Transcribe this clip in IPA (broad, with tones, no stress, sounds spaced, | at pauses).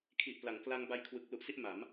kʰ i˨˩ ʔ p l a˩˦ ŋ k l a˧ ŋ b a˧ j kʰ w ɯ˨˩ k̚ l u˦˥ ʔ s i˥˩ ʔ m a˩˦ m